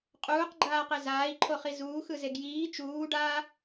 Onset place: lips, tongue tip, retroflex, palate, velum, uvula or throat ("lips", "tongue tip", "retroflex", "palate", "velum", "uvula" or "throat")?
uvula